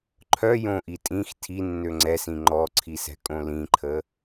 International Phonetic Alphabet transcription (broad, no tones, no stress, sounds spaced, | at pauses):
ǃʰ œ j õ ʔ i tʼ ĩ x tʰ i nː ø ŋ͡ǀ ɛ s ĩ ŋ͡ǃ ɔ ǀʰ i s ɛ̤ kʼ õ l ĩ ǃʰ ə